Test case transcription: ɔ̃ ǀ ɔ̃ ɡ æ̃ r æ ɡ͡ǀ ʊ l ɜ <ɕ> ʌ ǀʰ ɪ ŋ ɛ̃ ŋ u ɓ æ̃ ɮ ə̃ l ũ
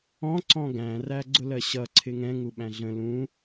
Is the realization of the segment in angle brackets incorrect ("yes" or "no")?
no